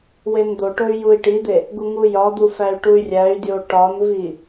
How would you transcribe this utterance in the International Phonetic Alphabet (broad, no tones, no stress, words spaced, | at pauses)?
wend̪oʈoy̯ jui̯ʈid̪e | ɡuŋujɒd̪u fæy̯ʈuy̯rʲæy̯dʲo ʈɒnvi